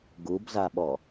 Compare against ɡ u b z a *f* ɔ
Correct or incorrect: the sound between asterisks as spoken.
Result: incorrect: ɓ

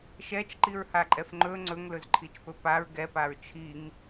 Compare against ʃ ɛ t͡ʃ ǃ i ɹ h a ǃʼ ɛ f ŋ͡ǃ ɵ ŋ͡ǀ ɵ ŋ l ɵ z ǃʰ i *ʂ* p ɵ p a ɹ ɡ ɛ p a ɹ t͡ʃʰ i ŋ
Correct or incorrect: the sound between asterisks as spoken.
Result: incorrect: t͡ʃ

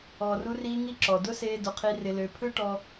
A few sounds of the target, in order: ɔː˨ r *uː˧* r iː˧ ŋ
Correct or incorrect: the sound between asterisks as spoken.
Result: incorrect: u˧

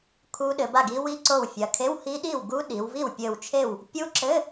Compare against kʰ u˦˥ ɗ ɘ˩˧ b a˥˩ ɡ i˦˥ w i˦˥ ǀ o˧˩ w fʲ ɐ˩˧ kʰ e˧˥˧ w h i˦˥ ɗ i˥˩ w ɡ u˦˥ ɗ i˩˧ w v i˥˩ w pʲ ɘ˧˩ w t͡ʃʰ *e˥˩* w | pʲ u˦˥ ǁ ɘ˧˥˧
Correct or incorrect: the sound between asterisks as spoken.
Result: correct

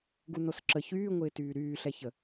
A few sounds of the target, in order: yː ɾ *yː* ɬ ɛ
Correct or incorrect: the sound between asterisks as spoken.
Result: correct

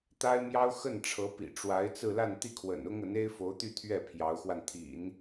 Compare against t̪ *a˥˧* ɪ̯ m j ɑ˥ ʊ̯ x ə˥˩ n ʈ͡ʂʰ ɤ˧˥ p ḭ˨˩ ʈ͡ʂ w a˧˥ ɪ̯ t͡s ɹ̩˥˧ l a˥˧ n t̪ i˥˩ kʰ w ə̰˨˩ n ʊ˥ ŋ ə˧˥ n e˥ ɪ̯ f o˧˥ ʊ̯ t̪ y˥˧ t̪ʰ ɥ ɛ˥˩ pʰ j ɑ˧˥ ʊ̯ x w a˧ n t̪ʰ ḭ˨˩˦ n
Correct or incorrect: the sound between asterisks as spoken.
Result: incorrect: a˥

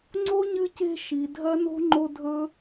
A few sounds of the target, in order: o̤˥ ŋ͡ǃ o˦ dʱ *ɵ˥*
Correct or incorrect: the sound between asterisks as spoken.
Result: correct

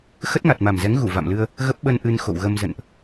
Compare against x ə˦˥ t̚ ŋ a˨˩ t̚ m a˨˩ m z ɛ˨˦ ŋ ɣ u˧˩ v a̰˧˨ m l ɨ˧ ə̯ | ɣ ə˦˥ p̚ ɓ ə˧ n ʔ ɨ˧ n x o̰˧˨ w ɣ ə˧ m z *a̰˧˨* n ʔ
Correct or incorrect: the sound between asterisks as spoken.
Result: incorrect: ə̰˧˨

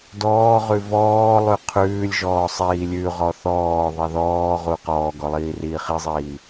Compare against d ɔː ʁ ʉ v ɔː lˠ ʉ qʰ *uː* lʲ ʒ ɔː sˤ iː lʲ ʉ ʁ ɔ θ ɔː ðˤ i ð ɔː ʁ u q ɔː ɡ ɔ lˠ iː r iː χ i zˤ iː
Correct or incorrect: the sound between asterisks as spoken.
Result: incorrect: ʉː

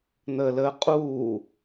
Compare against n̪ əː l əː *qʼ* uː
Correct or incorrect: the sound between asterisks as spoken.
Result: correct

